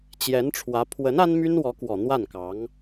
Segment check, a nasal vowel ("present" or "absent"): absent